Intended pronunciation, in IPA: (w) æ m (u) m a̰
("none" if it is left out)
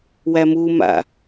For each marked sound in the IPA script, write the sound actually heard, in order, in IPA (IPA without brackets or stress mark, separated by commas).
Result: w, u